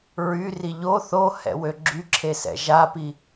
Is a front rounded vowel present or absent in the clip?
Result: present